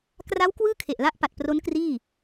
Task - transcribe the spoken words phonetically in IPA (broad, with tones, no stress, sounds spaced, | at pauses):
k r a˦˥ w k w ɯː˥˩ kʰ e˨˩ ʔ l a˦˥ ʔ p a˨˩ t̚ p r o˦˥ n k r iː˥˩